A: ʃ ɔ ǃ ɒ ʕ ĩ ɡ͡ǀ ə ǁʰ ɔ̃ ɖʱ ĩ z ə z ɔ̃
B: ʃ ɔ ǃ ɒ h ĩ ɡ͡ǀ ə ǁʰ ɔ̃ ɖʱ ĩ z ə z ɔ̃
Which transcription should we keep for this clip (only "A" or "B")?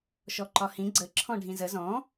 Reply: B